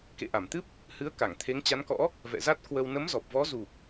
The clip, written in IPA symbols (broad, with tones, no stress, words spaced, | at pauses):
kḛ˧˨ʔa˧˩mt̪ɨ˦˥p̚ | hɨ˨˦ə̯ ka˧˩ŋt̪ʰe˨˦ŋt͡ɕa˨˦nkɔ̰˧˥ | vɛ̰˧˨za˦˥t̚kwə˧w nə˨˦mzɔ˨˩p̚vɔ˨˦ zu˨˩k̚